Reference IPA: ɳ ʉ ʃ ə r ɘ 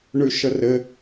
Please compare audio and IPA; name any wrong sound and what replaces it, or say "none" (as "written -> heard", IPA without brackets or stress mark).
none